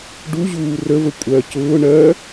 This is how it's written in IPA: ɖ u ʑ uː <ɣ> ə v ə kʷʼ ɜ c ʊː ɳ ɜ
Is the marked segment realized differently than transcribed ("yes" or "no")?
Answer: yes